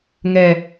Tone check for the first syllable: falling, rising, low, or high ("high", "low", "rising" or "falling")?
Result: low